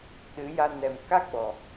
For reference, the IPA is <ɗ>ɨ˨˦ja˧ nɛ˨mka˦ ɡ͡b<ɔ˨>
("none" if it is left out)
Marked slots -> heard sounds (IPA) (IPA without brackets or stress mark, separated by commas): ɗ, ɔ˨